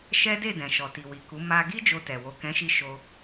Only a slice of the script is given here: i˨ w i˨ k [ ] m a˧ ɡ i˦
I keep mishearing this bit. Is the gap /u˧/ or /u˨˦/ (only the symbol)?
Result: u˨˦